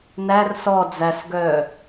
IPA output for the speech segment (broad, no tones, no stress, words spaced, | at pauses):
nær sɔ d͡zæsɡœ